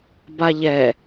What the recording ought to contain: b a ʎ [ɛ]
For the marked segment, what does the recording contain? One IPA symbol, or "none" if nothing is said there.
ɛ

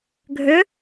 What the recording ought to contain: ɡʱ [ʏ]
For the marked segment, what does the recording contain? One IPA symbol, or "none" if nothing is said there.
ʏ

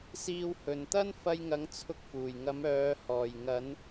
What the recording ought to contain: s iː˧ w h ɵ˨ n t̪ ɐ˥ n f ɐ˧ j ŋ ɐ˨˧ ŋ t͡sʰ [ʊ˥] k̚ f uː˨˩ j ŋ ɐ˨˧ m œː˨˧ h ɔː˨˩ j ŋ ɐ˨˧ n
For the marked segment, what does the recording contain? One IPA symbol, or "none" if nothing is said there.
ʊ˨˥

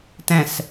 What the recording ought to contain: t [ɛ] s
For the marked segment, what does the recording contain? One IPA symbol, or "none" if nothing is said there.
ɛ̃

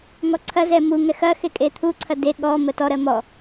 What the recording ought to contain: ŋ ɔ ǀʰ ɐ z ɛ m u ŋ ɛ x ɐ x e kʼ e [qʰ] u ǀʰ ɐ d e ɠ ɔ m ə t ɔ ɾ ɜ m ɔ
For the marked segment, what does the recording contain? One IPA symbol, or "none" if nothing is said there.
t̪ʰ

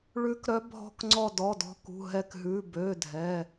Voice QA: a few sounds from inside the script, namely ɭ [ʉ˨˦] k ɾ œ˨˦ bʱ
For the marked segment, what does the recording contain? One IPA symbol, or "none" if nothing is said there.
ʉ˨˦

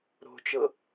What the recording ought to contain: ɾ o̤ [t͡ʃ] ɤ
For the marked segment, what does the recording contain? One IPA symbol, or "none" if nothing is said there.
t͡ʃ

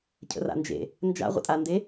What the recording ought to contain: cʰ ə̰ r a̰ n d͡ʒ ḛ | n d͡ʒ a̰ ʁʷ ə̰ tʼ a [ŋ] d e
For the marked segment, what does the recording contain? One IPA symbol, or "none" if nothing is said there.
n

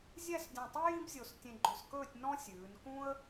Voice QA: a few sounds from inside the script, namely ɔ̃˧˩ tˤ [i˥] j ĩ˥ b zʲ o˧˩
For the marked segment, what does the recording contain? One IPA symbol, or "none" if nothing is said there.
i˥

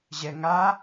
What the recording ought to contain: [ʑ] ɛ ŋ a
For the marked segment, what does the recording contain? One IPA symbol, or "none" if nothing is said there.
ʑ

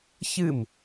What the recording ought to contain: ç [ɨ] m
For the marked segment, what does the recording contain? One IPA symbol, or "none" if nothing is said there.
ɨ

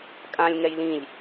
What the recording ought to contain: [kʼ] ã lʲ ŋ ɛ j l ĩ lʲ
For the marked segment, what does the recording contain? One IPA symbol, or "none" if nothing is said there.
kʼ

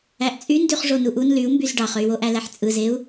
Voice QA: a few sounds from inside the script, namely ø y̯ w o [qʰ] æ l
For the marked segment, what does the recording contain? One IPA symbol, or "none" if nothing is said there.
ʔ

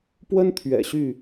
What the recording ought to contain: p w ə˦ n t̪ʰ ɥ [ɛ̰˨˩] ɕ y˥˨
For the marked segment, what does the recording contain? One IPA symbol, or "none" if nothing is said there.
ɛ̰˨˩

